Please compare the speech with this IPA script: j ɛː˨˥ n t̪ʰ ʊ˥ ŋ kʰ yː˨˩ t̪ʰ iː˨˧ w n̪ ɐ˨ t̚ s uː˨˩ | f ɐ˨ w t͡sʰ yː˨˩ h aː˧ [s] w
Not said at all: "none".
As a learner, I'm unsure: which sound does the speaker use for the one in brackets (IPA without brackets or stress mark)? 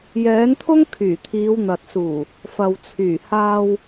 none